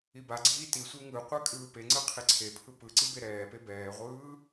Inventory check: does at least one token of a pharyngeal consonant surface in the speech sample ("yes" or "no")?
no